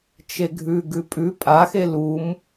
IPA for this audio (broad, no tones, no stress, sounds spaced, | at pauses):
t͡ʃ e ɡʱ ʉ ɡ ʉ pʼ ʉ pʼ a x e l u m